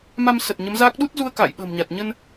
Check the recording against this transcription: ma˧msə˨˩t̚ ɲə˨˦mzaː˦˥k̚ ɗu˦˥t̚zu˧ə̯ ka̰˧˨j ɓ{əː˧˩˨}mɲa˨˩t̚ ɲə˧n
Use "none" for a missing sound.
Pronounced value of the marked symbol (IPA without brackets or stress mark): ə̤ː˨˩